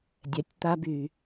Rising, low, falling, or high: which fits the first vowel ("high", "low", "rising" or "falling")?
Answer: low